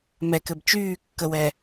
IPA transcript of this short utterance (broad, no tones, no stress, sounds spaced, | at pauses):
m ɛ k ɘ b t͡ʃ yː kː ə w ɛ